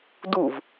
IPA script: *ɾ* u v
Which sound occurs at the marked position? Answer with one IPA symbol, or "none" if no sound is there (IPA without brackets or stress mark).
d